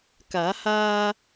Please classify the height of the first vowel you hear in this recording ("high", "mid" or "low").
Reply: low